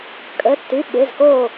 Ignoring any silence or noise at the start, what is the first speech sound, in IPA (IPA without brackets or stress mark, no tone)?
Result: kʼ